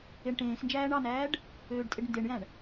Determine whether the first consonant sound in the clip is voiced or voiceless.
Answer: voiced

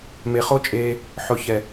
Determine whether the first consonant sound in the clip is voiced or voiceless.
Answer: voiced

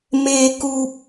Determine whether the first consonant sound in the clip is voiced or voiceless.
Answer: voiced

